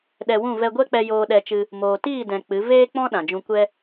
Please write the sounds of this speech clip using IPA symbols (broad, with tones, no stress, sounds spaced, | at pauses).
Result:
ɗ ɛ˧ w ũ˦˨ v ɛ˧ ɡʷ ɛ˦ k͡p ɛ˧ j oː˧ ɗ ɛ˧ t͡ʃ ɨ˧ | m oː˨ t iː˦˨ d ɛ̃˨ k͡p ɨ˨˦ v eː˦ k͡p ɔ̃˦ ɗ ã˨ d͡ʒ ũ˧ kʷ ɛ˦